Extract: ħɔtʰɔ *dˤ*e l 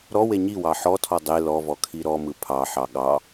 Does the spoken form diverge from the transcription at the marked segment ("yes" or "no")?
no